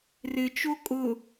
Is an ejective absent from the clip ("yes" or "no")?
no